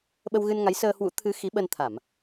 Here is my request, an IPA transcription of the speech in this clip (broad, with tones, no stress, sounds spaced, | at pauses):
ɓ ə˧ w ɣ ɨ˧ n ŋ a˨˦ j s əː˧ h w ṵ˧˥ t̪ʰ ɨ˨˦ x i˨˦ ɓ ə˧ n t̪ʰ a˧˩˨ m